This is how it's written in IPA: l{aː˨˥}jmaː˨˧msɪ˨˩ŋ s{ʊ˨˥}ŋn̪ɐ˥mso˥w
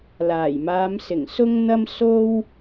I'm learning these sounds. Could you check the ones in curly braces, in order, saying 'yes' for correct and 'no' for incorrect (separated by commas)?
no, no